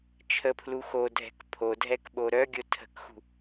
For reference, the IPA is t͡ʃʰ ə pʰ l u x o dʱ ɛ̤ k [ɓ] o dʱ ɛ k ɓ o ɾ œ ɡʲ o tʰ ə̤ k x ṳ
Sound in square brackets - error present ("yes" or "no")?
yes